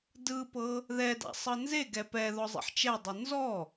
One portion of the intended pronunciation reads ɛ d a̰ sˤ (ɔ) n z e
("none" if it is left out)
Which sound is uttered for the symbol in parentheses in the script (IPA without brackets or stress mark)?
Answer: ɤ